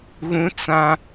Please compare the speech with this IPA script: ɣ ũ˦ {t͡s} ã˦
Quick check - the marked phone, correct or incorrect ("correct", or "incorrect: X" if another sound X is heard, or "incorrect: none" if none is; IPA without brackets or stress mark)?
correct